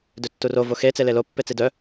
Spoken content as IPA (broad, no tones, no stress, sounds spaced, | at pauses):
d ø tː u r o v o x e t͡s e l e l o pː e t͡s i d œ